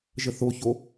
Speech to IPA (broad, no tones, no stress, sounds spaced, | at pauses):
ʒ ə θ o ç o